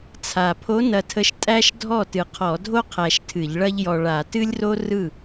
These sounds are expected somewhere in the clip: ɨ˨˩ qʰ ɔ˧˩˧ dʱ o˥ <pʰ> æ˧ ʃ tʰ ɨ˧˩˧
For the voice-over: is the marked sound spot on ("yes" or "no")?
no